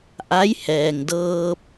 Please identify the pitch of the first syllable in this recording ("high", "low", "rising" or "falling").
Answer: rising